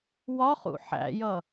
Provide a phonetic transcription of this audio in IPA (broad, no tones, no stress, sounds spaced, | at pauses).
w ɒ χ ṵ ħ æ̰ j ʌ